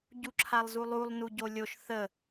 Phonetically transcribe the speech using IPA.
ɟ u ǁʰ a lˠ z u lˠ u lˠ n u ɟ o lʲ o ʃ θ ə

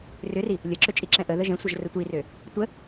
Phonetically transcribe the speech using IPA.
r ʏ r i | lʲ ɤ ǁ ʏ t͡ʃʼ i ǁ ɛ̃ ʔ ə ð ə ʒ ɛ̃ sʷ ɤ ʒ r ə tʷ i r ø | tʷ ə

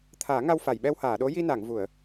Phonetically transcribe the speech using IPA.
t̪ʰ aː˨˩˦ ŋ a˧ w f a˨˩˨ j ɓ ɛ˧ w h aː˨˩˨ ɗ o˧˥ j i˧ n a˨˩˨ ŋ v u˨˩˨ ə̯

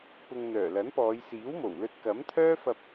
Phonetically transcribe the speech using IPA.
p ʊ˨ ŋ n̪ œː˨˩ l ɐ˨˥ n p ɔː˨˧ j s iː˨˥ w m o˨˩ w l ɵ˧ t̚ k ɐ˨˥ m t̪ʰ œː˥ f ɐ˧ p̚

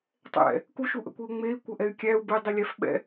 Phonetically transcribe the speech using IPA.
tˤ ɛ̰ | k u ʃ u ʔ ə̰ kʷ i u̯ ŋ͡m e i̯ kʷ ə ʔ ɛ y̯ kʲ æ u̯ b e dˤ i lʲ æ f ɓ ɛ̰

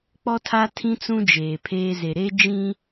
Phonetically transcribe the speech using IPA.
k͡p ɔ˦ tʰ a˦ tʰ ĩ˦ t͡s ũ˦ d͡ʒ eː˨ pʰ eː˦ z e˨ ɾ e˦ d͡ʒ ĩ˦

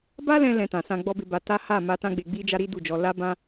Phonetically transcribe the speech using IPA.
b a˦ l ɛ̃˧ l ɛ̃˧ t ã˨ s ã˧ ɡ͡b ɔ˦ b e˧ b a˧ t a˦ h a˦˨ m a˧ t ã˦ ɡ͡b e˧ ɡ͡b i˦ d͡ʒ a˦ ɾ i˦ d u˦˨ d͡ʒ ɔ˧ l a˦ b ã˦

